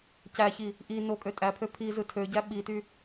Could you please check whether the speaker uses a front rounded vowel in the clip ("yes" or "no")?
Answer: yes